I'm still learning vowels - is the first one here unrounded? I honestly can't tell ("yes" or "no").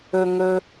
no